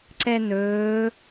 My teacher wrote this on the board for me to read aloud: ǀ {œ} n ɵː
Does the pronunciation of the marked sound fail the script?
yes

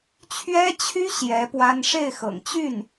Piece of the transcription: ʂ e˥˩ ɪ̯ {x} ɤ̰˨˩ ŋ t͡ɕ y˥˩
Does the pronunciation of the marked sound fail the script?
no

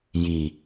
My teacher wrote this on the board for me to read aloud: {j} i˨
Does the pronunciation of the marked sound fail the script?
no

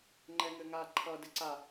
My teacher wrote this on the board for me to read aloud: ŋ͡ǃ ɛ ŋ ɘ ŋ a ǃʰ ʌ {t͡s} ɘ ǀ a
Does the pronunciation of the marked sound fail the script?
yes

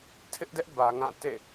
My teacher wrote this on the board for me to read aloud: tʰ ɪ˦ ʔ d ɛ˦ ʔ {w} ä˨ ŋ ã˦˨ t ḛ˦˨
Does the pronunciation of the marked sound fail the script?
yes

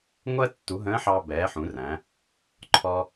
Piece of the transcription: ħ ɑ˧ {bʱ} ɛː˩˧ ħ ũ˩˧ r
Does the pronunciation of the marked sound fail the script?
yes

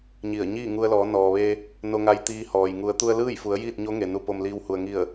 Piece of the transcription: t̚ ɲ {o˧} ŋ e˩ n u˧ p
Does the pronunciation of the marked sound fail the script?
yes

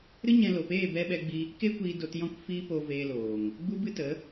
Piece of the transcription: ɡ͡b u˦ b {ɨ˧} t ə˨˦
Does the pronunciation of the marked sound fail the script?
yes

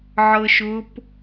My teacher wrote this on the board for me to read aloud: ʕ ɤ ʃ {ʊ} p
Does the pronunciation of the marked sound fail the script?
no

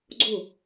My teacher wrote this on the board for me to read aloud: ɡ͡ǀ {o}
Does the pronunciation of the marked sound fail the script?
no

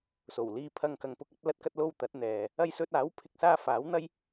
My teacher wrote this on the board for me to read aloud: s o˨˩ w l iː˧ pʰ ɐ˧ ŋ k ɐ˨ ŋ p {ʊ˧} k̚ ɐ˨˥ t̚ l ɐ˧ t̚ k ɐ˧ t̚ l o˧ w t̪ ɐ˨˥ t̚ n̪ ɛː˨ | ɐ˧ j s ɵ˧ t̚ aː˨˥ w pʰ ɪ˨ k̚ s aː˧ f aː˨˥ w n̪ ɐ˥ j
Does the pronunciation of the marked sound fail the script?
no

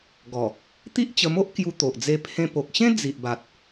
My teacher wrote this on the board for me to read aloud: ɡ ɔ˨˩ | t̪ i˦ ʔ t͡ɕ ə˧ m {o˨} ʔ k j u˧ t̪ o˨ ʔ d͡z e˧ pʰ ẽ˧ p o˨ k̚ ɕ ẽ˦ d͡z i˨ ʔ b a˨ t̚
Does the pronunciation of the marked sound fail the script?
yes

